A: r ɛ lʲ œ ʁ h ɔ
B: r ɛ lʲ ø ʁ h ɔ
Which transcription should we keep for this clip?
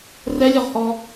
A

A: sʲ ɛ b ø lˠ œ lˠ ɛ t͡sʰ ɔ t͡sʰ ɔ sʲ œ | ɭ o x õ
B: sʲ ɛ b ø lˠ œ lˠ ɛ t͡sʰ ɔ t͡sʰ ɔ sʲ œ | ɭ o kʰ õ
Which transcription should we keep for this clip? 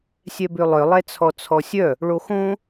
A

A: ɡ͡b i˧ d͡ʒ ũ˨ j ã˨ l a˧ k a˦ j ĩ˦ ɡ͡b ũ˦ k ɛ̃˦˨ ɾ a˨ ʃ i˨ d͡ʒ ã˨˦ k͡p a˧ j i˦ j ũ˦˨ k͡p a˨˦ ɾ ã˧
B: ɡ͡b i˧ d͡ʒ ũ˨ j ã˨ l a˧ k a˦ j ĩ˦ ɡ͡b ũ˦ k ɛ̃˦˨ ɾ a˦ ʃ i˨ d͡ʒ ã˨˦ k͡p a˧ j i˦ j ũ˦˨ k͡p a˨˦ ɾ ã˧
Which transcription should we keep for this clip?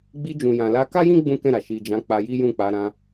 A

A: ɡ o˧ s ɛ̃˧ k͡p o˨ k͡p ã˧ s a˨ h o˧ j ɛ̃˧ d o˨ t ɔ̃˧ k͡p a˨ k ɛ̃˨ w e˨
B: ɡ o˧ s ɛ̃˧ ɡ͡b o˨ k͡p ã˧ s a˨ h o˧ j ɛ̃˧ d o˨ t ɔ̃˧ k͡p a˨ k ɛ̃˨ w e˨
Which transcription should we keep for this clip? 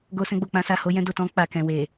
B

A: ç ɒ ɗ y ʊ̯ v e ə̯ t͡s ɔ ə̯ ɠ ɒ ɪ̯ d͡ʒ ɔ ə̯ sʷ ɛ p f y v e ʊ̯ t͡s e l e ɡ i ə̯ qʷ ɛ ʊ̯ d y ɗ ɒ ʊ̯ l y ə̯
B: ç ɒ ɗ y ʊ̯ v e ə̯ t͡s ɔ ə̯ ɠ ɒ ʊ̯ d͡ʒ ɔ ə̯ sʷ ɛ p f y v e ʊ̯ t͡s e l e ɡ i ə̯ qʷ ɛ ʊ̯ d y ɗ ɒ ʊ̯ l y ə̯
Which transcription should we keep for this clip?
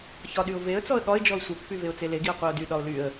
A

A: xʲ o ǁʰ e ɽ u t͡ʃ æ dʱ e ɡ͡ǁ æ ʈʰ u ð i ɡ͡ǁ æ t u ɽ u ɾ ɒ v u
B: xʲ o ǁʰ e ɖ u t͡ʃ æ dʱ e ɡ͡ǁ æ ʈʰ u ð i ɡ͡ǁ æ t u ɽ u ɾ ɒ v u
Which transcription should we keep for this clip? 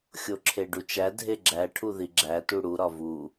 B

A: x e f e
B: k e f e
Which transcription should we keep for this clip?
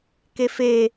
B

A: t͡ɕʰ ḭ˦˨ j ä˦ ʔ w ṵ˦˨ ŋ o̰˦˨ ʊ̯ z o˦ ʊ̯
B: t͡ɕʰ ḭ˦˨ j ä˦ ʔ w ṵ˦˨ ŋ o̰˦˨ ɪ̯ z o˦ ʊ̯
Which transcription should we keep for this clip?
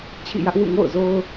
A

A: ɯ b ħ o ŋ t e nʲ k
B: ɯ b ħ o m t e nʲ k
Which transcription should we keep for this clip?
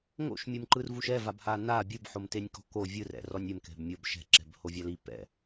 B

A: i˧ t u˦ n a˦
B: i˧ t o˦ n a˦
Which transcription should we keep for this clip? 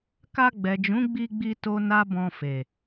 B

